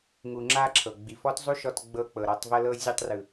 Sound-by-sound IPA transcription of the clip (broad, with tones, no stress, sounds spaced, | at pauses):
ŋ u˨ ŋ͡ǁ a˧ ǁʰ ɤ˨ ɡ͡b i˨ f ɔ˦ t zˤ u˦ ʃ ɔ˧ t ɡ͡b ɤ˧ k͡p ɤ˨ ɾ ɔ˧ tˤ v ɤ˧ l ɤ˧ zʲ ɤ˧ tˤ r ɯ˨